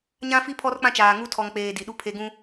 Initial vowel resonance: nasal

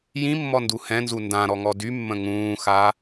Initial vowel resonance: nasal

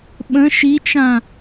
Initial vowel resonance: nasal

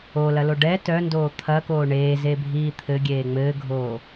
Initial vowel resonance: oral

